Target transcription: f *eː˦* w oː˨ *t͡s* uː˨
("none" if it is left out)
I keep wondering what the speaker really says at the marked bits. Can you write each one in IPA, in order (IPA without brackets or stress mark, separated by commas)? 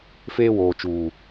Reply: eː˦, t͡ʃ